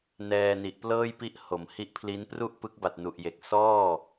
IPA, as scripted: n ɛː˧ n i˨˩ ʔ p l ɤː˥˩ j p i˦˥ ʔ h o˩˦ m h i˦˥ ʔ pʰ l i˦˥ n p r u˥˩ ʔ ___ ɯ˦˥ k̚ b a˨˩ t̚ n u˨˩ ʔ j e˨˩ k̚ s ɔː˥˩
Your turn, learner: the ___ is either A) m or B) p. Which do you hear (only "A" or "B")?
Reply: B